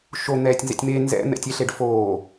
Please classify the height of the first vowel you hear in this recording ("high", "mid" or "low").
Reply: mid